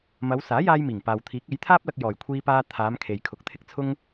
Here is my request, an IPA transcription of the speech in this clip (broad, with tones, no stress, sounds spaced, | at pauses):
m ɐ˨˧ w s aː˨˥ j aː˧ j m iː˨˩ ŋ p aː˨ w t̪ʰ iː˨˥ k̚ e˨˥ j t̪ʰ aː˥ p̚ l ɐ˧ k̚ j ɔː˨˩ j kʷʰ iː˧ p aː˧ t̪ʰ aː˨˧ m kʰ e˨ j kʰ ʊ˨˥ k̚ t̪ʰ ɪ˥ k̚ t͡sʰ ʊ˥ ŋ